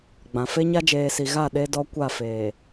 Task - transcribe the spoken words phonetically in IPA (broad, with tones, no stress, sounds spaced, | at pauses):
ɡ͡b ã˨ f e˦ ɲ a˦ d͡ʒ eː˨ s i˨ ɣ a˦˨ ɗ e˦ d ɔ˦ kʷ a˦˨ f eː˨